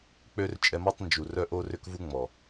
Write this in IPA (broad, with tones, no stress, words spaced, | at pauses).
k͡pø˦r t͡ʃʼɛ˧mɔ˦tˤ nd͡ʒu˨rœ˦ ʔo˧rʏ˧kvu˧ ŋ͡mɔ˨